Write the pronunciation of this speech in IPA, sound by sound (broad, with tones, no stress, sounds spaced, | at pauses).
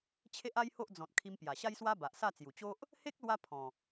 t͡ɕʰ e˦ ʔ a˦ j h o˦ ʔ d͡z ɔ̃˨ t̚ kʰ i˧ m p j a˨˩ ɕ a˦ j s w a˦ b a˨ ʔ s a˥˧ t͡s j u˨˩ t͡ɕ o˦ ʔ | h e˦ k̚ l w a˧ pʰ ɔ̃˨˩